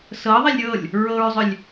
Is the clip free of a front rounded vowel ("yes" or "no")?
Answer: no